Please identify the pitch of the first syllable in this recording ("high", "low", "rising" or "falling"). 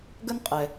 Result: high